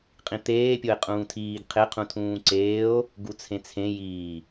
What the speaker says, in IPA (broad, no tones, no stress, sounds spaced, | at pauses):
qʼ ĩ t̪ eː pʲ o e̯ qʼ ũː tʰ iː ɡ qʰ e qʰ ũ tʰ ũː ǀ eː o̯ | ɡ u t͡sʰ ẽ t͡sʰ ẽ j iː